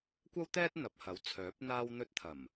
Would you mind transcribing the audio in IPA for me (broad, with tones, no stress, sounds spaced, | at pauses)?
kʷ ɐ˥ w t̪ ɛː˥ t̚ n̪ ɐ˨ p̚ h ɐ˨˥ w t͡sʰ œː˨˥ p̚ n̪ aː˧ w n̪ ɵ˧ t̚ t̪ʰ ɐ˨˩ m